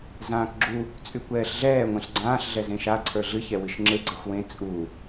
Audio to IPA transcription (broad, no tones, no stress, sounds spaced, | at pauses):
z ãː k ɡ͡ǁ u | t͡sʼ y kʷ ɛː ɬ ɮ ɛː ŋʷ ẽ ɬ ɡ͡ǀ ãː ɬ ɮ ɛ z ẽ ʃ a ǀʰ ə˞ ɮ ɨ ç ɛ w ɨ ʃ ŋ͡ǁ e ɡ͡ǀ ɛ xʷ w ẽ t͡sʼ u